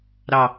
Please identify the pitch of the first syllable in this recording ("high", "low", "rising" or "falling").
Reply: low